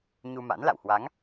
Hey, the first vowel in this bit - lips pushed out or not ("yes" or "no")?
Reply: yes